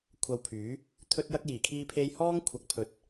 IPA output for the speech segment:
kʷʰɐ˧wpʰyː˨˥ | t̪ʰɵ˥t̚jɐ˥k̚jiː˨˩ kʰiː˧pʰe˧jhɔː˥ŋ kʷʰɐ˨˥k̚pʰɵ˨t̚

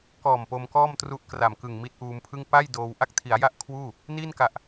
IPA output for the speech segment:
kɔː˨˩m po˧mkɔː˥˩mtru˦˥ʔ kra˨˩mkɯ˨˩ŋ mi˦˥t̚ʔuː˧mpʰɯ˥˩ŋ pa˥˩j doː˧w ʔa˥˩k̚tʰi˩˦a̯ja˥˩ʔ kʰwuː˥˩ | niː˥˩nka˨˩ʔ

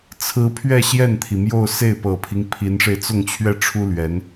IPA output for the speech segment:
t͡sʰɹ̩˧˥pʰɥɛ˥˧ ɕjɛ˥˩nt̪ʰi˩mjo˥˧ʊ̯ se˥˩ɪ̯pɤ˨˩pʰi˦ŋ pʰi˧˥nʂe˧ɪ̯ t͡sʊ˥˧ŋt͡ɕʰɥɛ˥˩ʈ͡ʂʰu˥ lɥɛ˧˥n

